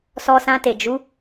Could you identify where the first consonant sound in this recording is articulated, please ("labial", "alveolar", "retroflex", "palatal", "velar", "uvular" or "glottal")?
alveolar